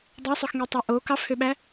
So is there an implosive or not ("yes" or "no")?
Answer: yes